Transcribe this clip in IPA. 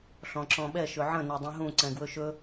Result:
ɬ ɔ̃ ǁ ɔ̃ ɓ ɛ ʃ ɵ ʕ ə̃ n ɛ dˤ ɛ̃ ɦ ũ ǀ ɛ̃ ɡ w ɵ ʃ ɵ

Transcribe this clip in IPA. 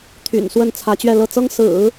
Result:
t̪ʰ y̰˨˩ n s w ə˥˩ n t͡sʰ ä˧˥ t͡ɕ ɥ ɛ˥˧ l ɤ˥˩ t͡s ɤ˥ ŋ s ɹ̩˨˩˦

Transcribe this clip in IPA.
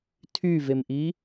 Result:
tʰ y v e m ʔ i

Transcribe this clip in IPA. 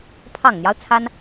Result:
pʰ ɑ˨˩ ŋ n̪ j ɑ˦ ʊ̯ t͡sʰ a˥ n

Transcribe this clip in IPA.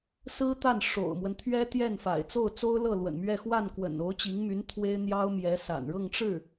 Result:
s ɹ̩˥ t̪ a˥˩ n ʂ o̰˨˩ ʊ̯ m w ə˦ n t̪ʰ ɥ ɛ˥ t̪ j ɛ˥˩ n f a̰˨˩ ɪ̯ t͡s o˥˩ ʊ̯ t͡s o˥ ʊ̯ l ɤ˥˩ l w ə̰˨˩ n m ɥ ɛ˥˧ x w a˥˩ n k w ə̰˨˩ n o˧˥ ʊ̯ t͡ɕ i˧˥ ŋ m y˧˥ n t̪ʰ w e˥ ɪ̯ n̪ j ɑ˥ ʊ̯ m j ɛ˧˥ s a̰˨˩ n ɻ ɤ˥˧ ŋ ʈ͡ʂ ɻ̩˥˩

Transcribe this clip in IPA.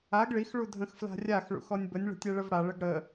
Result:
a ɡ ɭ i x ɭ u dʱ ə̃ x f l a̤ rʲ a x ɭ ṵ x ɔ nʲ b ə nʲ ɭ ə̤ tʲ ɛ ɭ ə v ɽ a ɭ ə ɡ ɽ ə

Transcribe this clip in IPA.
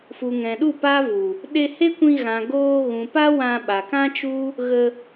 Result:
f u˨ ŋ ɛ̃˨ ɗ u˦˨ p a˦ v u˨ | ɗ e˧ h e˦ kʷ ĩ˧ ɣ ã˨ ɡ oː˧ ɣ ũ˨ p a˦ w ã˧ ɓ a˨ k ã˦ t͡ʃ u˦ | ɣ ə˧

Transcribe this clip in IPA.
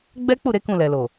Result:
ɡ͡b ɛ˦ k͡p u˦˨ ɾ e˨˦ k ũ˦˨ l ɛ˨ l o˨

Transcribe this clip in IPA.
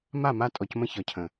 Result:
m a˦˨ m a˦ tʼ ɔ˨ c m ə̃˦ ç ɒ˨ cʰ ə̃˨

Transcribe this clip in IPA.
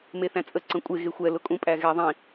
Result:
m e θ æ̃ t͡sʼ ə ǀ ə̃ kʷʼ e ɣ e xʷ ɛ l ʊ kʼ ũ pʼ æ ɣ ɛ ðˤ ĩ

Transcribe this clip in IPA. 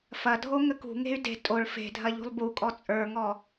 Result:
f ɐ dʱ o ŋ ə k ṳ ŋ e̤ y̯ d e̤ tʼ o ɭ f e̤ dʱ ɐ ʎ ṳ lˠ b u kʼ ɔ t͡sʼ ə˞ ŋ ɔ

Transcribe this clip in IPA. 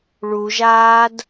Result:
ɭ u ʒ aː d

